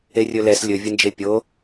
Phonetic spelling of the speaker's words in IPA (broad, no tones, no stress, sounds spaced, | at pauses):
e rʲ ɵ l ɛ s lʲ ɵ vʲ ə n d͡ʒ e pʲ o